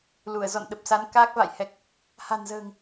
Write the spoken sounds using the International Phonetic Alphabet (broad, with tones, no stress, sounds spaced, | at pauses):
l u˧˩ ə̯ z ɔ̰˧˨ n ɗ ə˨˩ p̚ s a˨˦ n k aː˦˥ k̚ v a̰˧˨ j h ɛ˨˩ k̚ | h a̤˨˩ n z ə̤ː˨˩ ŋ